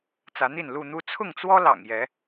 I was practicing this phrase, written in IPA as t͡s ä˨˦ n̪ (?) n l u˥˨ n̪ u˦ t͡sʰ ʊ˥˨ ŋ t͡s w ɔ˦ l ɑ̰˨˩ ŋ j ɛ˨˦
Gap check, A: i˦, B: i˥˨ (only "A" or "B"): B